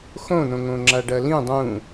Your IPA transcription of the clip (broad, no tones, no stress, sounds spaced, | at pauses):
x õ n õ ŋ õ ŋ͡ǁ a ɖ ɐ l ĩ dˤ ũ